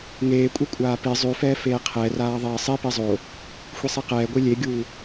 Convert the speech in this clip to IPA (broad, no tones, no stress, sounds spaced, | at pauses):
ŋ eː kʷʼ ɛ kʷʼ aː p i zˤ ʉ f ɛː f eː qʰ ɛ r aː ðˤ ɛː sˤ i p i zˤ o | xʷ i sˤ i q ɛː ɡʷ i lʲ e ɡʲ uː